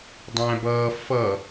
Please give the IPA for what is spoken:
dˤæ̃bʌː fʌ

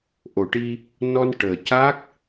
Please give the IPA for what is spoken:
ʔo˨˩˨ʈi˧ | nɔ˧n ʈəː˨˩ ca˦˥k̚

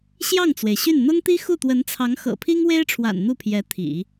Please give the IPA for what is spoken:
ɕjɑ˥˩ŋt͡swe˩ɪ̯ɕy˥˩n n̪ʊ˥ŋt̪i˥ xu˥˩t̪wə˧˥nt͡sʰɑ˧˥ŋ xɤ̰˨˩pʰi˥ŋwe˥ɪ̯ʈ͡ʂʰwa̰˨˩n n̪u˥˩pʰjɛ˧˥ t̪ʰḭ˨˩˦

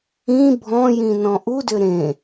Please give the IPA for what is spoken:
ĩ bʱɔ̃jĩ nɔ̃ʔudʏ ɾẽ

